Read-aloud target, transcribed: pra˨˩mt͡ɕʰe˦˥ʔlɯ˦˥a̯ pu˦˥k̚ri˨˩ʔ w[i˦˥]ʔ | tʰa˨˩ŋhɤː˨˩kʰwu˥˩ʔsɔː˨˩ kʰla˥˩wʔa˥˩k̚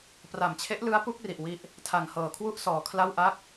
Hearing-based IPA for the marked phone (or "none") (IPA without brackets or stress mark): i˦˥